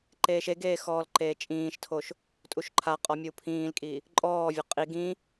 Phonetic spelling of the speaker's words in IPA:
ǃ eː ʃ e ɡ eː x ɔː l ǃ eː t͡ʃʼ ĩː ʃ tʰ o ʃ | tʼ u ʃ ǃʰ a qʼ ɔ mʲ u pʰ ĩː l kʼ i | ǃʼ ɔː vʲ ɔ qʼ i ɡ ĩ

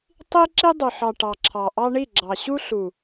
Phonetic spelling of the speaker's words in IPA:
tˤ i˦ ǁ i˦ dˤ ɵ˨ ħ ɑ˨ ʈ ɑ˨ ǁʰ ɑ˨ ʔ ɑ˦ ɳ i˦˨ ɡ͡ǁ ɑ˨ ɕ u˦ ɬ u˨

